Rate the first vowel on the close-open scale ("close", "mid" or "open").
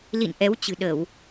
close